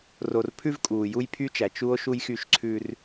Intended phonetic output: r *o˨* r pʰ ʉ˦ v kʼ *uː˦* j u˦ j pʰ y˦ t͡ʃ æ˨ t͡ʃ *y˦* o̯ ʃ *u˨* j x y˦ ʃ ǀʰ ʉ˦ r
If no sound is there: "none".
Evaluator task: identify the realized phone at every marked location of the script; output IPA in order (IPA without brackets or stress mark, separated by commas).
o˨, uː˨, u˦, u˦